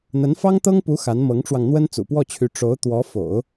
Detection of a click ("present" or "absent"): absent